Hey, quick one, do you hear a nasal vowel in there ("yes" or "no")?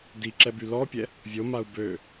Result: no